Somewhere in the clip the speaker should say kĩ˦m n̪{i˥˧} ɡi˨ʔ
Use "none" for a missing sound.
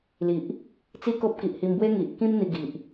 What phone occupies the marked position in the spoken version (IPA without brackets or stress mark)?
i˧